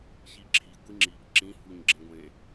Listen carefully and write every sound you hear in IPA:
ç i ǁʰ i ɡʷ i ŋ͡ǁ i ɡ ǁ ĩ h u ɲ ɡ͡ǁ ẽ ɡʷ ẽ

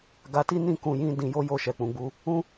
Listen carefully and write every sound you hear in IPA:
ɡ a˧ t i˦ n ĩ˦˨ k ũ˧ j ĩ˦ d ĩ˧ j o˦ j o˦˨ ʃ ɛ˨ k͡p ũ˨ ɡ͡b u˧ | ũ˦

